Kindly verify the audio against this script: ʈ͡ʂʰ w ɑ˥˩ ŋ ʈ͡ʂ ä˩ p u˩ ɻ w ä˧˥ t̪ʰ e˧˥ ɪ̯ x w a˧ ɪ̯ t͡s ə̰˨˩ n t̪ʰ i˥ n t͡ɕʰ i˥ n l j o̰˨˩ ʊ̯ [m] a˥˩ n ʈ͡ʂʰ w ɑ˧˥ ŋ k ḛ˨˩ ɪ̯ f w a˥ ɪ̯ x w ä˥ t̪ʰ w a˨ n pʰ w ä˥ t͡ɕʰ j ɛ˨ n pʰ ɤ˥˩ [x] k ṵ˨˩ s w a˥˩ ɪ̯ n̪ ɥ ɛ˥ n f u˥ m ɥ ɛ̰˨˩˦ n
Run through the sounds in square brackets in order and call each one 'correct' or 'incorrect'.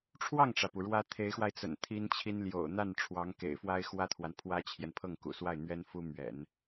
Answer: incorrect: n̪, incorrect: ŋ

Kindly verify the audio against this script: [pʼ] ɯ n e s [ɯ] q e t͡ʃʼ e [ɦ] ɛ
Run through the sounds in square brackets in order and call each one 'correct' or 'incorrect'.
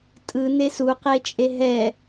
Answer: incorrect: tʼ, incorrect: u, correct

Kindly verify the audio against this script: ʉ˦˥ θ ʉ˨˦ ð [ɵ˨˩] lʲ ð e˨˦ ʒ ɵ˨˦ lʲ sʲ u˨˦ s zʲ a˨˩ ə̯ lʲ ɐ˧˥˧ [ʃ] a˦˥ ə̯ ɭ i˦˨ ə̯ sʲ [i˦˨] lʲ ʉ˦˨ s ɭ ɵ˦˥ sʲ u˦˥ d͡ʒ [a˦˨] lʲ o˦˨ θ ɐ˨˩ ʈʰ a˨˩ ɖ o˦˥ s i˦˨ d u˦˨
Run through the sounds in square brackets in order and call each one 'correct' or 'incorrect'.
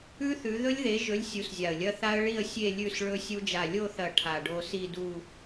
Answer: incorrect: ɵ˦˥, incorrect: θ, incorrect: e˦˨, correct

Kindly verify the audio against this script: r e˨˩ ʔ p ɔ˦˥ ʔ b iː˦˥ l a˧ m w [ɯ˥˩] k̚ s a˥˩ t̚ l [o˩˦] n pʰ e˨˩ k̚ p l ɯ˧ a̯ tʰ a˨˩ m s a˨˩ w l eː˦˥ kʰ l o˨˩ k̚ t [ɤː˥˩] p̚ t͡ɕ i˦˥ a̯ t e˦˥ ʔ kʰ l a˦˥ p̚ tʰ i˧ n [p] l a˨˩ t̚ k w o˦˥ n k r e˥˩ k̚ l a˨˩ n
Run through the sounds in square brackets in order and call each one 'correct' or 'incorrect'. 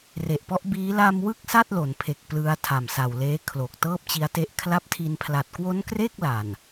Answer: correct, correct, correct, incorrect: pʰ

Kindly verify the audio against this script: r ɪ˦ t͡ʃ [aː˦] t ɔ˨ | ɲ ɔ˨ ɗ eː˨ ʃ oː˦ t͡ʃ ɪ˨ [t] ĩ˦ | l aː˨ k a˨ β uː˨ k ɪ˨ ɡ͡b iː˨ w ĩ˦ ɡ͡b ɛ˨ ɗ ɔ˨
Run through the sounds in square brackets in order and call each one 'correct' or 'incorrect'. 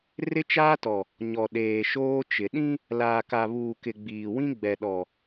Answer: correct, incorrect: ɗ

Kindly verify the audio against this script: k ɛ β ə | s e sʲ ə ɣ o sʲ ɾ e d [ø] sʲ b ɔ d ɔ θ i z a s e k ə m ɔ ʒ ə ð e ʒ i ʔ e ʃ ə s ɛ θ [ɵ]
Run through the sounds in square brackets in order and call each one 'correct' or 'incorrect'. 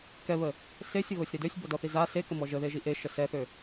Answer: correct, incorrect: ø

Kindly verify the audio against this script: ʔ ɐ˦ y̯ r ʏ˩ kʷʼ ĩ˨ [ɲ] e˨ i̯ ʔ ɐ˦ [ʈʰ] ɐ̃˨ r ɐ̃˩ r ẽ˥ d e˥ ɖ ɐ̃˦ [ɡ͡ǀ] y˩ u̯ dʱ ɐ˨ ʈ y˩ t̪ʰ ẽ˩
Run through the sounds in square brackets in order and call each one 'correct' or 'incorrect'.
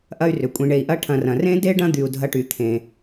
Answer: incorrect: ɳ, correct, incorrect: d̪

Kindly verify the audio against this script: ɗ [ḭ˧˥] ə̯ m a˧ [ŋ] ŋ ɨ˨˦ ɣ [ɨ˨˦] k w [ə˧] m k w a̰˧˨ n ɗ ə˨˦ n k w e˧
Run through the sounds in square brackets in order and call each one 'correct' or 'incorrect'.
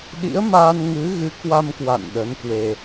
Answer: correct, incorrect: n, correct, incorrect: a˧

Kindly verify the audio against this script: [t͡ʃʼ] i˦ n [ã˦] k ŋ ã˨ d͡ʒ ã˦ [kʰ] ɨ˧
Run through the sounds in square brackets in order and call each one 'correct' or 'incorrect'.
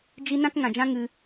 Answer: incorrect: d͡ʒ, correct, incorrect: ŋ

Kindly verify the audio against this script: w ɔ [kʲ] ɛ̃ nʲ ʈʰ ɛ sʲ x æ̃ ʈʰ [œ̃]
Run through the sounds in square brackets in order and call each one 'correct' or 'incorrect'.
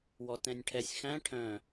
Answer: incorrect: t, correct

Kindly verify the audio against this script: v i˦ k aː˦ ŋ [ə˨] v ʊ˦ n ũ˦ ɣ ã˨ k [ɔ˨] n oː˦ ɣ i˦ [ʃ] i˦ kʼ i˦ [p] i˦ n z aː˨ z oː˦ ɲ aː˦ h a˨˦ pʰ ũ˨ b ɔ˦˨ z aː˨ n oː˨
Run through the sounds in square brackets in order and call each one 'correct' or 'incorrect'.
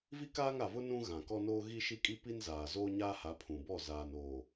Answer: incorrect: a˨, incorrect: ɔ˦, correct, correct

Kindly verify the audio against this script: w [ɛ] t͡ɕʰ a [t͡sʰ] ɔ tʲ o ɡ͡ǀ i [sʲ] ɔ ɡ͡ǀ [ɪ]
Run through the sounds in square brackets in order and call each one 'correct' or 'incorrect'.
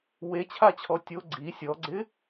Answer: incorrect: e, incorrect: t͡ɕʰ, correct, correct

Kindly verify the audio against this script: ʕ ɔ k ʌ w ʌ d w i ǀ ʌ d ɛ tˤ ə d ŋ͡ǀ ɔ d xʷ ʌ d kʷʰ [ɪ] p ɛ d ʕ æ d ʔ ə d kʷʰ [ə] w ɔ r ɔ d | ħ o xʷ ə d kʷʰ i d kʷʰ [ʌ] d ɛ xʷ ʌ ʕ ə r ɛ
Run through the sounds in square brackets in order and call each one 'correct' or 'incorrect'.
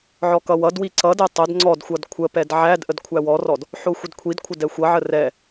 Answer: incorrect: ə, incorrect: æ, incorrect: ə

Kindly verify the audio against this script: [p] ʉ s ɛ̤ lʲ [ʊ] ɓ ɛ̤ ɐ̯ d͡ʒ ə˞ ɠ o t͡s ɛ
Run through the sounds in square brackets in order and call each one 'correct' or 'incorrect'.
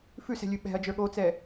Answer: incorrect: f, incorrect: ʉ

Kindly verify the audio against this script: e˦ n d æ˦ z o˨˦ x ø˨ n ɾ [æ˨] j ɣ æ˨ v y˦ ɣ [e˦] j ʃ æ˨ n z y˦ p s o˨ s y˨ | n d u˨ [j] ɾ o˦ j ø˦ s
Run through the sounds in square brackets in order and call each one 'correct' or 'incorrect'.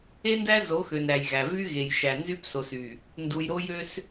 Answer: correct, incorrect: e˨, correct

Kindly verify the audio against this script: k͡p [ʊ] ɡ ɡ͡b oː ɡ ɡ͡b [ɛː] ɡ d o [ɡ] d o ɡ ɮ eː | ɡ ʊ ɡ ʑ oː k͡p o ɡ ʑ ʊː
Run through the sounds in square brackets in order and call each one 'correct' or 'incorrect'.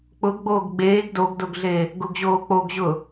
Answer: correct, incorrect: eː, correct

